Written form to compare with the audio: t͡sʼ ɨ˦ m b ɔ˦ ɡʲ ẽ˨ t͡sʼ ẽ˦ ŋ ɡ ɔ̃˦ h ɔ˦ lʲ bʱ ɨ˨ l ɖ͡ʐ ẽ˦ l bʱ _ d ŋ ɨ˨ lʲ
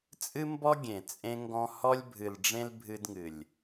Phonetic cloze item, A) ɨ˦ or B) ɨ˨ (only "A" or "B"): A